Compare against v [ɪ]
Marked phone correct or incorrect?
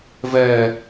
incorrect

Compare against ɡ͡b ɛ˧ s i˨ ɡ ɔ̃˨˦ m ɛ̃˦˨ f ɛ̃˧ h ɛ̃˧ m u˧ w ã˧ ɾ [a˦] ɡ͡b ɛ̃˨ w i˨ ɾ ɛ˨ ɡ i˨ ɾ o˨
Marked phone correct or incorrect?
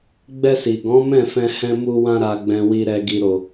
incorrect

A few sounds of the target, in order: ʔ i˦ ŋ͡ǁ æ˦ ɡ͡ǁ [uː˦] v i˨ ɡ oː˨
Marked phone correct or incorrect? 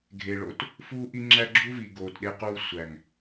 incorrect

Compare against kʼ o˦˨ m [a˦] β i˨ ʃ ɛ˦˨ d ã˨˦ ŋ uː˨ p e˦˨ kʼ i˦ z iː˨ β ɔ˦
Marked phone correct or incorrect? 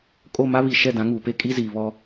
correct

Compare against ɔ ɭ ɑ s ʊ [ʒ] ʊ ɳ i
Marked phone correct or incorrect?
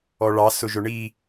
correct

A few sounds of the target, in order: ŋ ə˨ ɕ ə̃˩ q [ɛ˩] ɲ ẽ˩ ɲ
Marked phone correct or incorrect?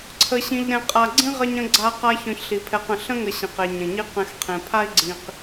incorrect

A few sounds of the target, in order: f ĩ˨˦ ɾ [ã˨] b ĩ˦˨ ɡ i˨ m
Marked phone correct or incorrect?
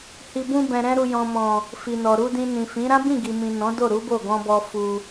incorrect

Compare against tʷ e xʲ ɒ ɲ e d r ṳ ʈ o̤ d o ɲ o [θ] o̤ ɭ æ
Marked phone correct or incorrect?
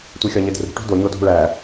incorrect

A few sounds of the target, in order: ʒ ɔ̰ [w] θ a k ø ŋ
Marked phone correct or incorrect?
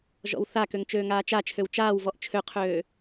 correct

